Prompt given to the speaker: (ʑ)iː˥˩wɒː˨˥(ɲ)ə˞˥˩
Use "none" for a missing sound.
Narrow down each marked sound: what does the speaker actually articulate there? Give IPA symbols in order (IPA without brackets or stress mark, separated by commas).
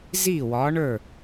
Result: z, ɳ